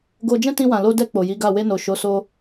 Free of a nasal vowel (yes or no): no